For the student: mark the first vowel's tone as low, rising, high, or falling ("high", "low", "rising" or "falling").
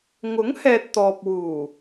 rising